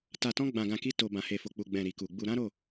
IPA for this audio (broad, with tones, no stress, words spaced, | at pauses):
ta˧tɔ̃˦ ɡ͡bã˧ɡã˧ki˦ to˧ bã˧he˧fo˧k͡pu˧ ɡ͡bɛ̃˧ ɾi˨ku˨ɡ͡bu˧ ɾã˦ɾo˦˨